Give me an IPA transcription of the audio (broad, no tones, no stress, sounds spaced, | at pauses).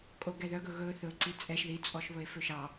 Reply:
kʼ o ɡ ɛ ð œ ɡ ɵ ɣ ɵ θ ɵ ǀ i t͡sʼ ɛ ʃ ð i t͡sʼ ɔ ʃ β ɵ e̯ f ø ʃ ɑ